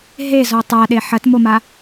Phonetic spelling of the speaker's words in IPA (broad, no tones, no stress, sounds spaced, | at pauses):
ɦ e z ɔ tˤ a ɗ e ħ ɐ t m o m a